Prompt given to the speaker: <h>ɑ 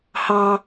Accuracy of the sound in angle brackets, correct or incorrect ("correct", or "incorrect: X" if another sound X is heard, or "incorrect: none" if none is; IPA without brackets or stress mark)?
correct